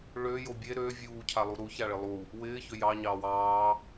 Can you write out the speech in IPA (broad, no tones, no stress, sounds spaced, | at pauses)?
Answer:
ɭ ø j o bʲ e ɾ ø vʲ uː cʰ a lˠ u ɾ u ç a ɭ ɪ lˠ u | w ɪː ç ø j ɑ ɲ ɑː w ɑː